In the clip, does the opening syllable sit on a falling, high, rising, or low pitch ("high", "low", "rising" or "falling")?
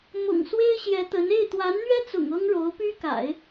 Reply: low